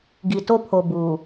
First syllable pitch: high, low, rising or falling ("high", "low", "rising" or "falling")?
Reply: low